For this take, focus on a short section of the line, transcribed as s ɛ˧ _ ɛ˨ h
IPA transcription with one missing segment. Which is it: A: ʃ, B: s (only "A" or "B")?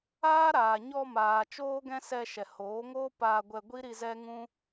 A